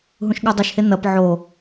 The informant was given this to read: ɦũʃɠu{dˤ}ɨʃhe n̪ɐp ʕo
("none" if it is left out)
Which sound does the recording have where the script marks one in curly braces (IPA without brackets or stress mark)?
dˤ